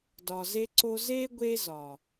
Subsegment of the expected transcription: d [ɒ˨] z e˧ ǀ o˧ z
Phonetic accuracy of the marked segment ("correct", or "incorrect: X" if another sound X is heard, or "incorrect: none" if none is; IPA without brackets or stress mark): correct